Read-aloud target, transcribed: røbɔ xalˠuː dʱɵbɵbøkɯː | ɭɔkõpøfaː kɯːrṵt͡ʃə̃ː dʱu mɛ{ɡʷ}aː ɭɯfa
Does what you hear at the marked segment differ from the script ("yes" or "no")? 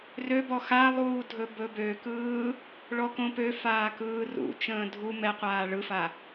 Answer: yes